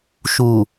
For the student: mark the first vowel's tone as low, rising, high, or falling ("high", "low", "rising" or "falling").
low